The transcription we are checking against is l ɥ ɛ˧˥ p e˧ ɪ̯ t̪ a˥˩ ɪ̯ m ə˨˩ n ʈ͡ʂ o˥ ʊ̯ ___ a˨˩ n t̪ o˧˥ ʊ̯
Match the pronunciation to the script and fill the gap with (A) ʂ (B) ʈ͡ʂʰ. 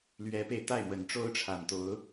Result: B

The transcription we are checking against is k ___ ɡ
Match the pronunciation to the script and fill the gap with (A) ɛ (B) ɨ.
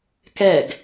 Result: A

